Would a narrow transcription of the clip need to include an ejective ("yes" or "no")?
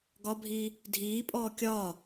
yes